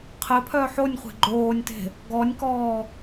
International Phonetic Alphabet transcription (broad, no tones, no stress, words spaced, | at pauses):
qʰɪpʰœ ħonʲχʷe̤ ɡ͡ǃoːnʲte̤ | ɡɔnʲkɔː